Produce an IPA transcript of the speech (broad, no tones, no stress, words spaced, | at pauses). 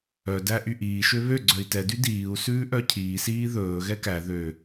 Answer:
œ dæʔyʔiː ʃøβø ɡ͡ǀœi̯tɛ dydiːu̯ sʉːʔœcʰiː siːðɵː ɣɛkæ ðø